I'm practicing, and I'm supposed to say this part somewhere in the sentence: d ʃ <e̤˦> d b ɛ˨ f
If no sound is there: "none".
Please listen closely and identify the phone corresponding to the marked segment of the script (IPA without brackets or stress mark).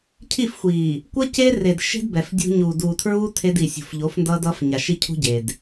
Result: e̤˦